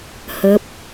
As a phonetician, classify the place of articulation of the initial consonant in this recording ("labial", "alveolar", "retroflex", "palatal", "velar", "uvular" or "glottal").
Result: glottal